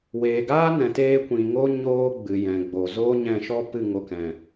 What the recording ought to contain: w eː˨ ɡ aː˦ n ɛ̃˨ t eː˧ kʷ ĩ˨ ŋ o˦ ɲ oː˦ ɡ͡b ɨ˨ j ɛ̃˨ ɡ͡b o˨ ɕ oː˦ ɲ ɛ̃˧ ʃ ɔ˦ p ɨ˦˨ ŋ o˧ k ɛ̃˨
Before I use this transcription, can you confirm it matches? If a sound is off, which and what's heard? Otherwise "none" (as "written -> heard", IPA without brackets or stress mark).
ɕ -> z